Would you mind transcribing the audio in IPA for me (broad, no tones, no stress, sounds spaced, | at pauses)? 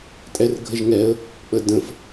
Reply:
tʼ ɛ r ɡʱ ə ʒ ŋ ɛ ə̯ | k͡p ə d ə̃ f